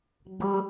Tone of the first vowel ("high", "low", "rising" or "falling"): high